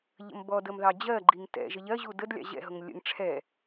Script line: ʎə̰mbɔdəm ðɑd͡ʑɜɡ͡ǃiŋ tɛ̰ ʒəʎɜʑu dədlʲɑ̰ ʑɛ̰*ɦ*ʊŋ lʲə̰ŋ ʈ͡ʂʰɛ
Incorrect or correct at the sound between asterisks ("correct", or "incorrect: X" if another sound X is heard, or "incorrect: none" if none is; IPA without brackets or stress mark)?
correct